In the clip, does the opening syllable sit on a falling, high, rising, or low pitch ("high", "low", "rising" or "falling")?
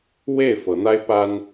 falling